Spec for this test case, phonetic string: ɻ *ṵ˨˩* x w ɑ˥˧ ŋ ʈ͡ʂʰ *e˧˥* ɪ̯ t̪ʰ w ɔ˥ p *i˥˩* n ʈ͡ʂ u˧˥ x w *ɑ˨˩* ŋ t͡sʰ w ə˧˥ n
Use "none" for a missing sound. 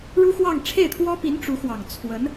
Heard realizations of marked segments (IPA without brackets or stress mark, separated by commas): u˥, e˥˩, i˧˥, ɑ˨˩